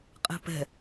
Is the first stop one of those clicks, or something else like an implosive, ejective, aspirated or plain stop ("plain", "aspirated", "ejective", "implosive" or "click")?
ejective